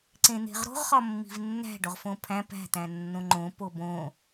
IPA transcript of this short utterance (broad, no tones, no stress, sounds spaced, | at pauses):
ǀ ẽ n̪ e̤ ʁ ɾ o̤ ʁ χ ɒ mː i̤ v nː æ̤ ɖ o ʁ f õ pʰ æ̃ p æ̤ t̪ æ̃ nː õ ŋ͡ǃ õ p o b õ